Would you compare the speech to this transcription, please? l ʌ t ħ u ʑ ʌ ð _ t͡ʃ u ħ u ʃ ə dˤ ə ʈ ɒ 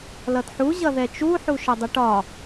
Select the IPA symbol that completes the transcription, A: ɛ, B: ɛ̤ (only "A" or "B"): A